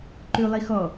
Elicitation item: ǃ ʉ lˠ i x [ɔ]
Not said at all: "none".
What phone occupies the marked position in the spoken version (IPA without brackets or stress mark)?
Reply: ɔ